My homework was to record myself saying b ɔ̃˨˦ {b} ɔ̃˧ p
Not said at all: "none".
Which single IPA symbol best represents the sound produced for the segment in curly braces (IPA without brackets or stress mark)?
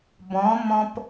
m